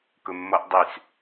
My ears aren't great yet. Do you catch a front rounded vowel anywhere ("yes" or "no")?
yes